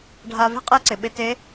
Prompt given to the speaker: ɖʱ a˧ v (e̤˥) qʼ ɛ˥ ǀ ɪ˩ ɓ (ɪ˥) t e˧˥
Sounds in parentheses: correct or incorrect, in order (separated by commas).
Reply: correct, incorrect